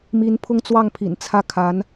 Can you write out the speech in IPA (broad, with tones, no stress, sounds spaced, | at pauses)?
m i˧˥ n pʰ ʊ˥˧ ŋ t͡s w ɑ˥˩ ŋ pʰ ḭ˨˩ n t͡sʰ ä˥˩ kʰ a˧˥ n